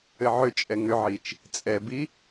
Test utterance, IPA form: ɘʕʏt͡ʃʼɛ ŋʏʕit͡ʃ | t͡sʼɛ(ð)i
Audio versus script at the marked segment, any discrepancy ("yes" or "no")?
yes